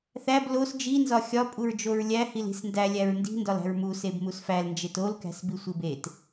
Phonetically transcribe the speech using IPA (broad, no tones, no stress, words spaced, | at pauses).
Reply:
θæb los d͡ʒinzɒ xʲɒpʼuɹ d͡ʒoɹlʲæ hili̤sndæ lʲæɹndi̤ndɒl æ̤ɹmuseb musfæl nd͡ʒetolkæ̤s bisʷibet